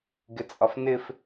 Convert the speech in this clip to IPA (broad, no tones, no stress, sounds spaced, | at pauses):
ɡ ɪ t͡sʼ ɒ f n ɪ f